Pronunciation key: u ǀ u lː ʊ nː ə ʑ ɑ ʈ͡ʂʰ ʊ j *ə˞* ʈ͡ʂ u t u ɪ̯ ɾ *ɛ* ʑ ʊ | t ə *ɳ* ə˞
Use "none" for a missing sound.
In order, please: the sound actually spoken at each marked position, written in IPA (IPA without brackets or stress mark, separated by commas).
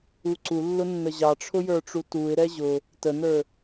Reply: ə˞, ɛ, n